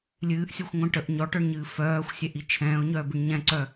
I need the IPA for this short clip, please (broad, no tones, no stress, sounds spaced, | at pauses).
lʲ ɨː ʔ sʲ ɔ xʷ ŋʷ œ̃ ʈ ə ʔ ɲ ɔ ʈ œ ɳ ɲ ɨː f œː xʷ sʲ ɛ ʔ i t͡ʃʰ ɛ̃ː ʊ̯ ɲ œː b ɨ ɳ ɲ ɛ̃ ǀ œ